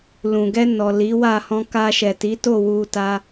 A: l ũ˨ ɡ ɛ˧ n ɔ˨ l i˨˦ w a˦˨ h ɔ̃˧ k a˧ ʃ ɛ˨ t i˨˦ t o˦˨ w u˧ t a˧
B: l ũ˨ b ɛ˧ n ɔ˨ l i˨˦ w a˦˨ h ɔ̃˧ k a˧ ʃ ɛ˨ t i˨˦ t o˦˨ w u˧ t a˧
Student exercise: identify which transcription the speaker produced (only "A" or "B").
A